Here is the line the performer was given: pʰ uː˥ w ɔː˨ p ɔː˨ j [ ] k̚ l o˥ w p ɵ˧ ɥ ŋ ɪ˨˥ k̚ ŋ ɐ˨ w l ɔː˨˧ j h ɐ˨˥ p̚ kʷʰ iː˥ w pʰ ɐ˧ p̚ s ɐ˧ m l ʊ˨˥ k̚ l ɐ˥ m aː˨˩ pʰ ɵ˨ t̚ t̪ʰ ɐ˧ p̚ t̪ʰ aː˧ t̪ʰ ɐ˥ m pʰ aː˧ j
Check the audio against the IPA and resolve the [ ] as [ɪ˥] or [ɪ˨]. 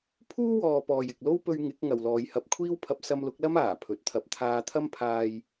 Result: ɪ˨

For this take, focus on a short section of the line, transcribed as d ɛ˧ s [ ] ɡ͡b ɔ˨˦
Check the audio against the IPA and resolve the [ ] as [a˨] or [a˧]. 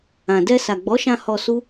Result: a˨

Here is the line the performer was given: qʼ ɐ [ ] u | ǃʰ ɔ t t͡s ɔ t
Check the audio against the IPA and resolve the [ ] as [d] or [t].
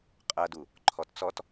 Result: d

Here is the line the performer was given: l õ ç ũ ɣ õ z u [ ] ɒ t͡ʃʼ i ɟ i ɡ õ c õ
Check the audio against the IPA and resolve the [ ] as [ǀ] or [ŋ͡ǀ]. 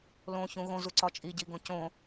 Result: ǀ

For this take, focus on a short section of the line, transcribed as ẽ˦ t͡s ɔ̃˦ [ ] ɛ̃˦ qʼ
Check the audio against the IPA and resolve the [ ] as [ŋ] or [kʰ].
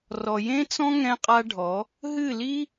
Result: ŋ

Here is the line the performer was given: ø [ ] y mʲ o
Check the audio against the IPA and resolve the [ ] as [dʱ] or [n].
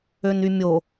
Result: n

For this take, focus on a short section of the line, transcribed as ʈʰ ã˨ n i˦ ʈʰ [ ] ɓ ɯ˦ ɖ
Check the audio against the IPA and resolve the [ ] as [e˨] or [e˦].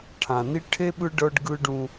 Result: e˦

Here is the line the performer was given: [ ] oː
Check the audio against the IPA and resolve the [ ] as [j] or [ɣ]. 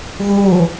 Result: ɣ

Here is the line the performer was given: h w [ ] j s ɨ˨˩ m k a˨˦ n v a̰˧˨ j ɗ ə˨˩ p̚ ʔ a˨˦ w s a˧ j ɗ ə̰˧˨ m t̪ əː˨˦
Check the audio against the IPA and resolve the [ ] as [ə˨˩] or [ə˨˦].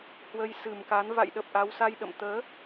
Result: ə˨˦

